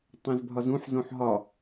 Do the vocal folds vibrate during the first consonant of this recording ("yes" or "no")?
no